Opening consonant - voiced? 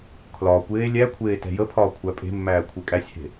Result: no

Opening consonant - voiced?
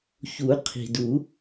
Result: no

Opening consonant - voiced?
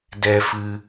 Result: yes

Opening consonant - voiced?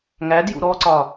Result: yes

